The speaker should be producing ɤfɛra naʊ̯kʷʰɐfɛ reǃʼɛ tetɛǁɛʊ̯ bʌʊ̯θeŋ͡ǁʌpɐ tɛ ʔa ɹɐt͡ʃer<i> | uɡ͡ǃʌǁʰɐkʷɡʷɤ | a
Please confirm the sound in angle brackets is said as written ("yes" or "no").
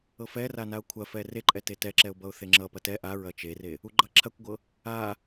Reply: no